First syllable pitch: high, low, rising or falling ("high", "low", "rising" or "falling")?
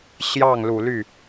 falling